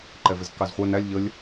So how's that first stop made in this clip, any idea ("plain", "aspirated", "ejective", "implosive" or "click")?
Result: click